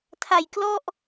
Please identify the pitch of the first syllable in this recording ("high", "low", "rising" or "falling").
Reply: low